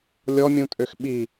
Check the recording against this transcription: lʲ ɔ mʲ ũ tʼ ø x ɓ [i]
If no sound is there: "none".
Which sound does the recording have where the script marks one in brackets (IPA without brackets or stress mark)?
i